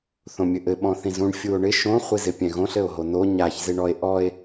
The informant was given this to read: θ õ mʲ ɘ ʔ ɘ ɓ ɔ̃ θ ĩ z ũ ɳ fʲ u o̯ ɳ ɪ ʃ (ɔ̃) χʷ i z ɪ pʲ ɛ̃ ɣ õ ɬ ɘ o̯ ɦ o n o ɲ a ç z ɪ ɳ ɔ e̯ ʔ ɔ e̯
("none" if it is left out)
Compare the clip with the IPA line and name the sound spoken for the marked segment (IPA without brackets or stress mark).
õ